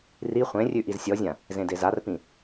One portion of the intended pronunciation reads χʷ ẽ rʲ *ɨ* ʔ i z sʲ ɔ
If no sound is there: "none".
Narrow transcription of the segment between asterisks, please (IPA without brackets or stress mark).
ʉ